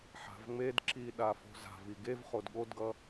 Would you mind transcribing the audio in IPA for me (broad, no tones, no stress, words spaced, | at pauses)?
ħa̤vŋ͡medǁi ɗafo̤za̤vi ɡev χodɠodɡʌ